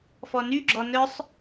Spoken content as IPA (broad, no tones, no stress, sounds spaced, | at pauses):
f ɔ n y ɡ͡ǁ ɔ n œ sˤ